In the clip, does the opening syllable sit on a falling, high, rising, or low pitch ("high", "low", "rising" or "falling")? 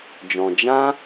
low